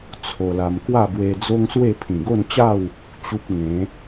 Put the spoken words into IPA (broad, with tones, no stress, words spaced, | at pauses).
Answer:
t͡sʰo˧la˧m kwa˥˧bwe˧d͡zo˦ŋswe˥˧ pʰĩ˨˩ɡo˥˧nt͡ɕa˥˧w | t͡ɕu˦p̚ŋẽ˨˦